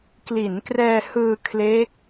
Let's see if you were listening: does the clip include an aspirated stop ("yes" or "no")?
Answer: yes